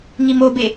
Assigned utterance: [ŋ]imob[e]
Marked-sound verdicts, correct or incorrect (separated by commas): correct, correct